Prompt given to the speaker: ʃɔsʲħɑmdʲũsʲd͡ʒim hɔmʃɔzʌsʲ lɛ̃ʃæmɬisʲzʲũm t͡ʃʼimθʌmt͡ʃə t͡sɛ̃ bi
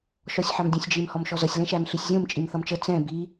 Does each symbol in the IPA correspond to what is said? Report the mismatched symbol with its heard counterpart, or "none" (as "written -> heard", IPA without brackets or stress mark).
none